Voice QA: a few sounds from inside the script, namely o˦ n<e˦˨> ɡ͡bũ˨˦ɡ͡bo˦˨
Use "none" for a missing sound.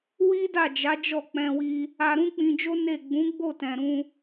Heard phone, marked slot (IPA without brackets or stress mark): e˦˨